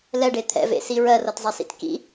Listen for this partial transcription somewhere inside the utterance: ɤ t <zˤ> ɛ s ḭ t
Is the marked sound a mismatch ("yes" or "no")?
no